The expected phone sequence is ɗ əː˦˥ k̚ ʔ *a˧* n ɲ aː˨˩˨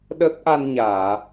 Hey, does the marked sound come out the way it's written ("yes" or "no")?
yes